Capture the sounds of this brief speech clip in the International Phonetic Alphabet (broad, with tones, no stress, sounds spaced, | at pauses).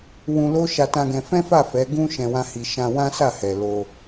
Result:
w ũ˧ l o˦ ʃ a˧ t ã˧ ɡ ɛ̃˧ f ɛ̃˦ f a˦˨ f ɛ˨˦ ɡ ũ˦ ʃ ɛ̃˧ w ã˦ h i˧ ʃ ã˧ w ã˦ s a˦˨ h ɛ˨ l o˧